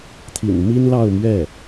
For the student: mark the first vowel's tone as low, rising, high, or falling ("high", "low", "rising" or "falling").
low